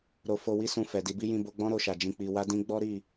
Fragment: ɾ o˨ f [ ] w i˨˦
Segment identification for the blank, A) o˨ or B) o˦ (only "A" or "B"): A